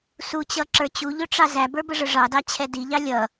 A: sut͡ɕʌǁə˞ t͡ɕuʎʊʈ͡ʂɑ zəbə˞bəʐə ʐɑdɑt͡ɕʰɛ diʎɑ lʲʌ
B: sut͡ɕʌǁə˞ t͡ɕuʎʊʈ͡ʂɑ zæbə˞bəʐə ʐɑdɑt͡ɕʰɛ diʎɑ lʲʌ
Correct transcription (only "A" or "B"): B